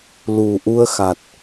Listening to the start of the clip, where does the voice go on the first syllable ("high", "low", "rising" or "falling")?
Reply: low